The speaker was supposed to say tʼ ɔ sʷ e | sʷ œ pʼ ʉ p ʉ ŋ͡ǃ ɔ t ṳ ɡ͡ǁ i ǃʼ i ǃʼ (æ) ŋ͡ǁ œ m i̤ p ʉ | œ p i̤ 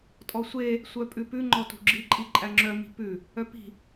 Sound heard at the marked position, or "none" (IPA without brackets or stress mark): æ